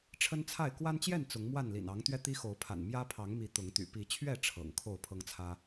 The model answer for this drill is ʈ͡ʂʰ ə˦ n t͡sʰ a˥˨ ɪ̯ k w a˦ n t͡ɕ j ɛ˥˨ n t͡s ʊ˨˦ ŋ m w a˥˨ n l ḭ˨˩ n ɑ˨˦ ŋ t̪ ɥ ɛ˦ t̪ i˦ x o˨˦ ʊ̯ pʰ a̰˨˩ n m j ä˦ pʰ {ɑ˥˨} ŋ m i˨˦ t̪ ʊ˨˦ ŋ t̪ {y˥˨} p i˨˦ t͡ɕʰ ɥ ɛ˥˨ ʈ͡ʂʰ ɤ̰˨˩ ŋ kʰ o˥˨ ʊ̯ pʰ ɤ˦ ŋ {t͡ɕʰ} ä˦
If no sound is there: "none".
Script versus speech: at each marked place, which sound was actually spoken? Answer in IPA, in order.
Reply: ɑ˨˦, y̰˨˩, t͡sʰ

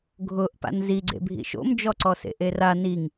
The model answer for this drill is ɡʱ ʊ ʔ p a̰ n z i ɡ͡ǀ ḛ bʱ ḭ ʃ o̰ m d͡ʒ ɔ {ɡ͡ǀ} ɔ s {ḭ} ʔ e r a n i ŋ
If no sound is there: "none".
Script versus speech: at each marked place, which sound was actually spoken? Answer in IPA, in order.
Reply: ǀ, ḛ

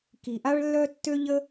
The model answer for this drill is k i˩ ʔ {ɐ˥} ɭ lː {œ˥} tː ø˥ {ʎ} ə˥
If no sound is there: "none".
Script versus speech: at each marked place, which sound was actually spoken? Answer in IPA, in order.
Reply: a˥, œ˥, ʎ

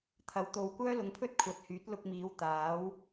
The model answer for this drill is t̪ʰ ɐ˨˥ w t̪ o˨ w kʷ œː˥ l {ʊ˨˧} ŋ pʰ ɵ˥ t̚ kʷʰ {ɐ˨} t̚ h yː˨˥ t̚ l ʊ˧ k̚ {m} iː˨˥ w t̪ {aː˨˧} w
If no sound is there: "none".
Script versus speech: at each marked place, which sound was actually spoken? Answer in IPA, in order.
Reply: ʊ˨˧, ɐ˨˥, m, aː˨˥

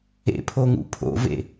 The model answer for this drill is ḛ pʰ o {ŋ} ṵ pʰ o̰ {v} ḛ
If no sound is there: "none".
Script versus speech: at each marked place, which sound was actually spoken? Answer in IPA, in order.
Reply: ŋ, v

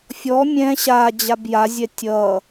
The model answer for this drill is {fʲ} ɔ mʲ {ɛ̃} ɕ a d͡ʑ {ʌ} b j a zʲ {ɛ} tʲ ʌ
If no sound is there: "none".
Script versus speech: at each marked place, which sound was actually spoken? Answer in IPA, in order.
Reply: fʲ, ɛ̃, a, ɛ

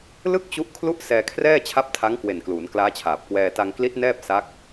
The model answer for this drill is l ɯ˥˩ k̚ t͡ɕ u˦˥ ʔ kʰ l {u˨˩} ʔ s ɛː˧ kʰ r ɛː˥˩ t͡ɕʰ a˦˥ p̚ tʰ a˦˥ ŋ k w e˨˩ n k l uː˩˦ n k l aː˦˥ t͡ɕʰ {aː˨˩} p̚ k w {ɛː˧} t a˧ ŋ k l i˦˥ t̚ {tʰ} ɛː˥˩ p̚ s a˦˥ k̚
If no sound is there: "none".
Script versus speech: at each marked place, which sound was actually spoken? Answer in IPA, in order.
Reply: u˥˩, aː˨˩, ɛː˧, n

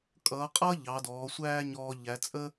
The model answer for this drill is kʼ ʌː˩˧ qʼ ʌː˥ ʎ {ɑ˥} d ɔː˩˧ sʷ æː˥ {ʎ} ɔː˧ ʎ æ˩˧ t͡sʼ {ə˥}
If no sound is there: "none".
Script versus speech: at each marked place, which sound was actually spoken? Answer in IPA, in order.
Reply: ɑ˩˧, ɲ, ə˥

